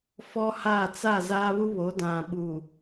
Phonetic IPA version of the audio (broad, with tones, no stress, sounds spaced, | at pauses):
f ɔ˦ h a˦˨ t͡s a˦˨ z aː˦ β u˦ β o˨˦ d ã˨ ɓ uː˨